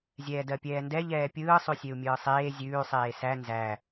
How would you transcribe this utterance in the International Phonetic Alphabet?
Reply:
zʲ ɛː d ɜ pʲ ɛː n d ɛ ʎ ɛː pʲ ɯː sˤ ʉ sʲ e u̯ mʲ ɯː sˤ eː zʲ ʉː sˤ eː s æ n z æ

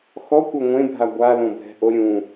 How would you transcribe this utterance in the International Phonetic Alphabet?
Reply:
x ɔ kʷ ɐ ŋʷ ẽ bʱ a ɡʷ a l õ bʱ ɛ̤ ʔ o ɾʲ ũ

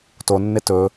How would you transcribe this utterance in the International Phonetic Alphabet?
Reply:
t o nː e t ɵ

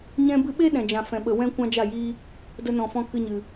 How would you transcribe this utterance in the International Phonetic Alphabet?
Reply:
ɲ ɛ̃˧ b ɨ˧ ɓ e˦ ɗ ɛ̃˨ d͡ʒ ã˨ f ɛ̃˨ ɓ ə˨ w ɛ̃˦ kʷ ã˦ d͡ʒ a˦˨ j iː˦ | d ə˧ n ɔ̃˨ f ɔ̃˧ k ɨ˧ ɲ ɨ˨

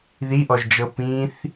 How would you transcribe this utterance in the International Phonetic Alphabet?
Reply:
ð i ʔ ɔ ʒ d͡ʒ ɤ p ĩ θ

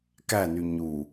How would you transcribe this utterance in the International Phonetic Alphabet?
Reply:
k æ n y ɲ u

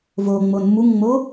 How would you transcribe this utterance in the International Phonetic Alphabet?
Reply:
v o ŋ͡m o n m u ŋ ŋ͡m o

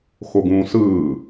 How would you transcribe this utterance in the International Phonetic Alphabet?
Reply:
x o ɡ ũː s ɯː

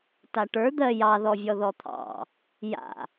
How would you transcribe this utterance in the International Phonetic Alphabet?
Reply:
t a ʈ ə˞ d̪ ɜ j ɑ ð ɔ vʲ ɔ ð ɔ t̪ʰ ɑ̰ | j a̰

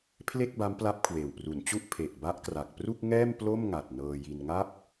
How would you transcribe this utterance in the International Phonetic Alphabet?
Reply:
pʰ l e˥˩ k̚ b a˦˥ m p l a˦˥ p̚ kʰ w eː˨˩ w p r u˩˦ n t͡ɕ u˥˩ ʔ pʰ e˨˩ ʔ b a˦˥ ʔ k r a˨˩ k̚ p r u˥˩ k̚ ŋ ɛː˥˩ m p l o˥˩ m ŋ a˨˩ t̚ n ɤː˧ j i˧ n ŋ a˥˩ p̚

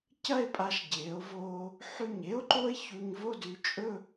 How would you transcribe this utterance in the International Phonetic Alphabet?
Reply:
c ɐ˥˧ e̯ pʼ a˧ ʃ ɟ eː˩˧ o̯ v oː˧ | ħ ʉ˧˩ ɲ e˥ o̯ ǃ o˥ e̯ ç u˧ ɲ v o˥˧ d ʉ˧ t͡ʃʼ ɵ˥˧

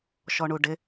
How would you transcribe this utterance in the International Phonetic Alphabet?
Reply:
ʃ ɔ ɳ u ɖ ɪ

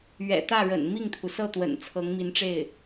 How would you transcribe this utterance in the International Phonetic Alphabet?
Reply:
ɥ ɛ̰˨˩ t̪ ä˥˩ ɻ ə̰˨˩ n m i˥˩ ŋ t̪ʰ u˩ s ɤ˥˩ t̪ w ə̰˨˩ n t͡sʰ ɤ˧˥ ŋ m i˧˥ n ʈ͡ʂ e˥˩ ɪ̯

